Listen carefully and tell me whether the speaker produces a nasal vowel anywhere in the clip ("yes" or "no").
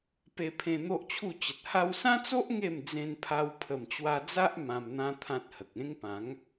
yes